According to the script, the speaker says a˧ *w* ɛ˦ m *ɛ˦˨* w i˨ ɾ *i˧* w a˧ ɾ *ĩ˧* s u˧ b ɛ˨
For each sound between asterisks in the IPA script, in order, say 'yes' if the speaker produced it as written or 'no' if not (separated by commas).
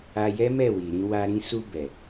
no, yes, no, yes